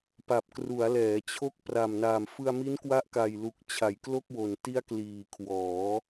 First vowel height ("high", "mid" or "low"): low